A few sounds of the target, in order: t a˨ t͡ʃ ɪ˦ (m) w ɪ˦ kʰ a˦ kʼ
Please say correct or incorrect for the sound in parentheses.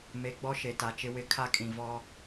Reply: incorrect